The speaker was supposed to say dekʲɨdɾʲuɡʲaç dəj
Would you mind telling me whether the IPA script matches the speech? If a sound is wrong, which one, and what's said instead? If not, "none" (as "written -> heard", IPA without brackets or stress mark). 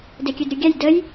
ç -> j